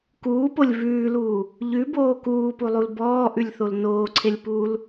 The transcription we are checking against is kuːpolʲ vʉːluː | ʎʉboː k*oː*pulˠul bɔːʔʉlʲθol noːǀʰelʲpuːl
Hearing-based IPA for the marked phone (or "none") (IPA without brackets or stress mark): uː